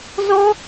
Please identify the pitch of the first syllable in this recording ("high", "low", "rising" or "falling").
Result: high